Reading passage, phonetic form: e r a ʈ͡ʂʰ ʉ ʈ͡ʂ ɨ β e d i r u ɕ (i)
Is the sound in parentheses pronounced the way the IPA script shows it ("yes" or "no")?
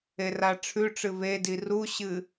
no